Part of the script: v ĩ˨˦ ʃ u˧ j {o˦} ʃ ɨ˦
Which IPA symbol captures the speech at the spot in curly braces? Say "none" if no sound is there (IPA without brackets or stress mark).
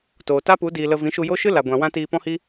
o˦